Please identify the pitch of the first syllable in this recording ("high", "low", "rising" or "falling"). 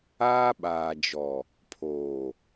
high